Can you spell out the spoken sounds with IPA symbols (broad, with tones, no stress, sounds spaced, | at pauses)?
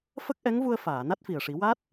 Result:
f ə˦˥ k̚ ʔ ɛ˧˥ ŋ v u˧ ə̯ f aː˨˩˨ n a˦˥ t̚ f i˨˩ ə̯ ʂ i˨˩˦ w a˦˥ t̚